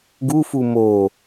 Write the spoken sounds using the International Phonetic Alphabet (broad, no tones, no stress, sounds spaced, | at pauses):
ɡ u f u m o